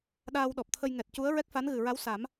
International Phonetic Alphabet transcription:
ɗaː˧wɗɔ˨˩p̚t̪ʰə˧j ŋɛ˨˩t̚cu˧˥ə̯ ɹɛ˦˥k̚fa˧˥nɣɨ˨˩ɹa˧˥w sa˨˩˦m

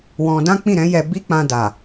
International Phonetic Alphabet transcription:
wɔ̃˧ dã˦k͡pĩ˦˨ɾɛ̃˨˦ jɛ˧bi˦k͡pã˧da˨

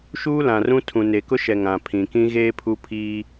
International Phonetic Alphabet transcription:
ʃuː˦lã˨rũ˦tʰũ˨ ne˨kʊ˦ʃɛ˨ ŋã˨ pʰĩ˨kĩ˦ ɣeː˦pʰu˦ pʰiː˦

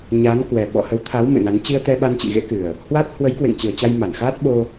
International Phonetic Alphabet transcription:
ɲa˨˦nkwɛ˨˩ ɓɔ̰˧˨hə˨˦wt̪ʰa˨˦w mɨ̰˧˨na˨˦n t͡ɕi˧ə̯t̪ɛ˧ɓa˧nt͡ɕḭ˧˨ ɣḛ˧˥kɨ˨˩ə̯ | hwa˦˥t̚ hwə˨˦jkwḛ˧˨ŋt͡ɕɨ˨˩ə̯ t͡ɕa˧jma˧˩nxaː˦˥t̚ ɓo˧

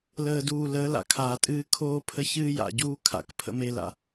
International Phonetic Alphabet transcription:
ləː˨duː˨ ləː˨˦la̰˨kʰaː˨tʼɨː˦ kʰoː˦pʰə˦ çɨː˦ja̰˨ɟuː˦ kʰa̰˨kpʰə̰˦me˦la̰˨

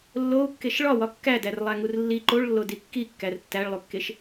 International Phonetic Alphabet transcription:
lːou̯kːeʃ ɭɒwɒ kːædærlˠæŋur lːi ǃoɭlːodi kːikːær tːæɭlˠukːeʃ

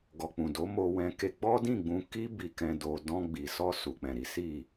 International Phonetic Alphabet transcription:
ɡɔ˨k͡pũ˨do˨˦ mo˧wɛ̃˧ke˧ ɡ͡bɔ˦dĩ˦˨ɡ͡bũ˧ ki˦ bi˧kɛ̃˧ do˧ dɔ̃˧ɡ͡bi˨sɔ˧ su˨k͡pɛ̃˨ɾi˨˦ si˦˨

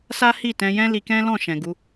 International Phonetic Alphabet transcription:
sa˦hi˦˨ tɛ̃˧jɛ̃˦li˧ kɛ̃˦lɔ̃˦˨ ʃɛ̃˨ɡu˧

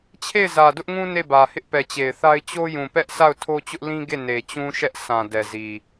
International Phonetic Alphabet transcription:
t͡ɕʰe˦˨ɪ̯zä˨dʊ˦ʔŋũ˦ ne˦˨bä˨ hɪ˦ʔpɛ˨t͡ɕe˨ɪ̯θa˦ɪ̯ t͡ɕo˦jũ˨pɛ˦ʔ sʰa˦˨ʊ̯tʰo˦t͡ɕʊ˦ʔ lĩ˦ɡe˦˨ ne˨t͡ɕũ˦ʃɛ˦ʔ sã˨ dɛ˨zi˨

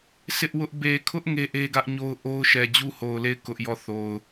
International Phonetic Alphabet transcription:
sʰɪ˦ʔwʊ˦ʔ be˨kʰʊ˦ʔ ŋe˦ʔe˦ɡä˦ʔɲo˦ʊ̯ ʔo˦ʊ̯ʃɛ˨ d͡ʑu˦ho˨ʊ̯le˦˨ɪ̯ kʊ˦ʔjɔ˦˨ θo˨ʊ̯

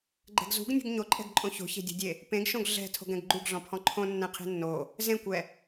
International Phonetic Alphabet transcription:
ɡ͡ǃɛ̤ɡzṳɡnʲṳɡ ɲoǃʼɛ̤ɡǃʼõ ço̤çe̤dʲo̤dʲe | pẽɡʃõɡ ɮɛ̤ tʰo̤ɡɛ̃ɡɡ͡ǃuɡɮɔ̃ pʰɔ̃ǃʰõ nːɛ̃qʰe̤nːo | zẽkʷɛ

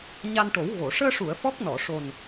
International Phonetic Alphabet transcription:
ɲa˧nʈo˨˩˦w ɣo˨˩˨ ʂəː˧ʂu˨˩˨ə̯ fɔ˦˥k̚nɔ˨˩˨ʂo˨˩n

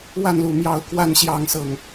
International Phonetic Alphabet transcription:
wa˥˨nlu˨˩ mjɑ˥˨ʊ̯ kwa˥˨n ɕjɑ˥˨ŋsɤ˨˩ŋ

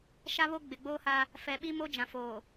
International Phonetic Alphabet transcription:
ʃa˦βo˦ ɡ͡bɪ˨ɡ͡boː˦ha˦ | fɛ˨ɓi˦mo˦d͡ʒã˨ foː˨

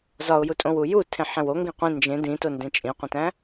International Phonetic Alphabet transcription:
zɒʊ̯jutʼõw uju tʰẽħẽwo ŋɡĩqʷĩ nd͡ʒẽ dĩto ndẽt͡ʃʼĩqʷĩtæ̃

